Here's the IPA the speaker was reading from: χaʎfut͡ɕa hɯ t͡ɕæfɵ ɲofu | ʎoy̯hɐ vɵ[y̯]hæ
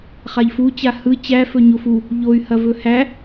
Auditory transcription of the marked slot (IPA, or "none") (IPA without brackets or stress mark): none